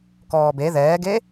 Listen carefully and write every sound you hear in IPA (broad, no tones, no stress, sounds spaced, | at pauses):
k ɔː b e ð ɛː ɡ e